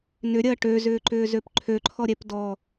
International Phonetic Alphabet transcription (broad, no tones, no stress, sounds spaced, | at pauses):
n ʏ ɾʲ ɐː ʈ ø z ʏː ǃ ʏː z ø p ǃʰ ø ǃʰ ɔ ɾʲ ɛ p d ɔ